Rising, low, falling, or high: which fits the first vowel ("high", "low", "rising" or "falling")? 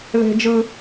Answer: low